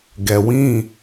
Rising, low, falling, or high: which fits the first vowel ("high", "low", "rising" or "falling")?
low